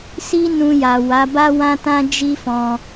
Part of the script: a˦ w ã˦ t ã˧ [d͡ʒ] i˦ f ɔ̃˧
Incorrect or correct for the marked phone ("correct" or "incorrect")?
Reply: correct